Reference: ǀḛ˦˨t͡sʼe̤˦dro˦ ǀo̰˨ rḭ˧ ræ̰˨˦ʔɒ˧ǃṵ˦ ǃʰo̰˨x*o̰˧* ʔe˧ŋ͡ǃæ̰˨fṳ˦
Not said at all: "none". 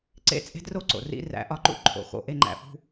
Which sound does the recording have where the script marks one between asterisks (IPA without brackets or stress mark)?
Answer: o̰˧